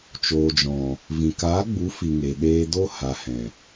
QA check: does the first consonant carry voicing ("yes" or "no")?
no